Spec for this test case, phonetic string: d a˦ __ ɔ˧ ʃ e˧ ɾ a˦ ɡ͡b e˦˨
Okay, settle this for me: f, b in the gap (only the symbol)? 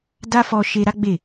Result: f